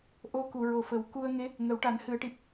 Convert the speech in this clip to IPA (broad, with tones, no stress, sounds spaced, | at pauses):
ʔ o˧˥ k u˨˩˨ ɹ o˨˩ f ə˨˩˦ w k u˧ ə̯ ŋ e˧˥ | ŋ ə˨˩˦ w ʈ a˨˩˦ n h ɨ˨˩˨ ə̯ ʈ i˨˩ p̚